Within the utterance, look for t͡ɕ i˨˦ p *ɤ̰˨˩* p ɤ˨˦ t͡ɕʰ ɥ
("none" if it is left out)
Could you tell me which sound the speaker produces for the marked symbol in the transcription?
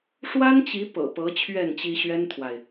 ɤ̰˨˩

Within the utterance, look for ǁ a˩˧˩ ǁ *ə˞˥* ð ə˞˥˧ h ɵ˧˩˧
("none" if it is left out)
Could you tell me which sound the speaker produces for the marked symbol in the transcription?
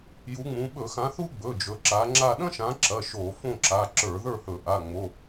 ə˞˧˩˧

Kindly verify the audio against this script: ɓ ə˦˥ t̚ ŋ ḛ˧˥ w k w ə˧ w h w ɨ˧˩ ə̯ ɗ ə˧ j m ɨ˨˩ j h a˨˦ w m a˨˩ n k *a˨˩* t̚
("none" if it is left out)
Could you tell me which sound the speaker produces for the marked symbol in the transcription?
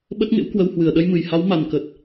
ə˨˩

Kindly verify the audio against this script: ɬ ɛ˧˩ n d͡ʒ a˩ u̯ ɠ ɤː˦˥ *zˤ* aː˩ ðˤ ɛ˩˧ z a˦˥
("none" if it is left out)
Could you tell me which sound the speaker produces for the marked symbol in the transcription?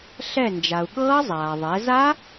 zˤ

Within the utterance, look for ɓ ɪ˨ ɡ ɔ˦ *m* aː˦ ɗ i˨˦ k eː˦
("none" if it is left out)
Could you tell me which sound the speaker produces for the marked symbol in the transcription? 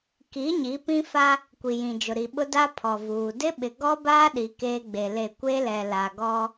b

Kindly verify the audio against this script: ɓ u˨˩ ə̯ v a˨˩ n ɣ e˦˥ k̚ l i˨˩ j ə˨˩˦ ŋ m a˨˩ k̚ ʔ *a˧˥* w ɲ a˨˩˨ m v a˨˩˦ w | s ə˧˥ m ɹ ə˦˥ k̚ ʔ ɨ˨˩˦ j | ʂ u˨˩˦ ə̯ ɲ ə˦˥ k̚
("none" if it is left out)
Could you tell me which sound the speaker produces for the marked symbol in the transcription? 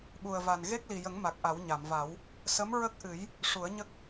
a˨˩˦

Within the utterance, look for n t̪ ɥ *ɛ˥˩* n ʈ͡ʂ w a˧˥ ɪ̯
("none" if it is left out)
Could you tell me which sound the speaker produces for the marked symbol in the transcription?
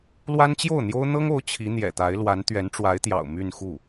ɛ˧˥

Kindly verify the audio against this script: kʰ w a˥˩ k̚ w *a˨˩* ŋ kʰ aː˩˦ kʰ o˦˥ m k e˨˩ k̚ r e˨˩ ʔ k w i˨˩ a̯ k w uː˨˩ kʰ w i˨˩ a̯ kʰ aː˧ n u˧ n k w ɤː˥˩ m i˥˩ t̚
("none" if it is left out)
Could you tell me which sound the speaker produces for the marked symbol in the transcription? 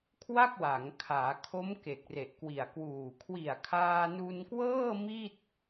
a˩˦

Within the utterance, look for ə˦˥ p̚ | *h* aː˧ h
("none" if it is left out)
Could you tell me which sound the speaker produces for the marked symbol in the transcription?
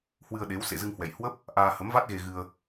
ʔ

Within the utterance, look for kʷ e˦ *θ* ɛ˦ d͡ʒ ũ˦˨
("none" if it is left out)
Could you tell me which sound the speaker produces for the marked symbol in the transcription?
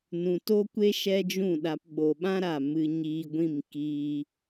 ʃ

